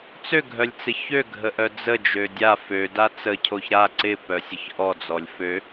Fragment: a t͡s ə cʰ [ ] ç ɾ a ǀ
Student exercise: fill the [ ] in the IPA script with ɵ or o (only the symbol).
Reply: o